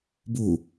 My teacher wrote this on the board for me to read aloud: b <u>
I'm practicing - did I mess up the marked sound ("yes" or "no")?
no